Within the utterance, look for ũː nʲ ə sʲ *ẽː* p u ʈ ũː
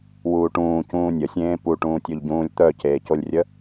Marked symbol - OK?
yes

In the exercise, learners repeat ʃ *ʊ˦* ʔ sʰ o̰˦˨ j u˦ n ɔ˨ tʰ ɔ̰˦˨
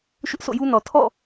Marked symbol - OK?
yes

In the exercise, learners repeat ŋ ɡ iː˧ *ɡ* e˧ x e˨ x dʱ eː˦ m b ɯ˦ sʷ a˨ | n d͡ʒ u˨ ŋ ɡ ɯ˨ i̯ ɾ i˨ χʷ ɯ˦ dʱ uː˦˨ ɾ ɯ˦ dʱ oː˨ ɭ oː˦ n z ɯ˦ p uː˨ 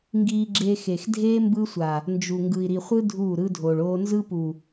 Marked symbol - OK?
no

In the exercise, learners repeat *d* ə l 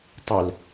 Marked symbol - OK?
no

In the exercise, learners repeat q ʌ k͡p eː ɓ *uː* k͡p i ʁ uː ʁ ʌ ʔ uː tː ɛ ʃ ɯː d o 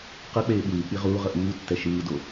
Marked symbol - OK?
no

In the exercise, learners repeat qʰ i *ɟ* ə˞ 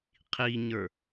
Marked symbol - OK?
no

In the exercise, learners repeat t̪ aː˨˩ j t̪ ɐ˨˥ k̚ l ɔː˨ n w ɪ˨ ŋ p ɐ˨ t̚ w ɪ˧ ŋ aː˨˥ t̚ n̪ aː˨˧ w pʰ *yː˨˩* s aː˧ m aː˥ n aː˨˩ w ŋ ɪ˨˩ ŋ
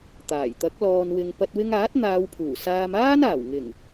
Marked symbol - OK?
no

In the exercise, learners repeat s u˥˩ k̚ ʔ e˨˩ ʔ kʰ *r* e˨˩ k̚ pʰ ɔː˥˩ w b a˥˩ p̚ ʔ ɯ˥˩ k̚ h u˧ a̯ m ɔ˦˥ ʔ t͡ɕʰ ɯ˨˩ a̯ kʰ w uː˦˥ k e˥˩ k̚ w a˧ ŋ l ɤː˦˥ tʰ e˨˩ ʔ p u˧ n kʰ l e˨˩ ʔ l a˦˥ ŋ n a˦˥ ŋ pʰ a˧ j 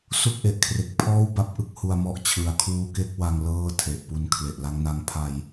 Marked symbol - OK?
yes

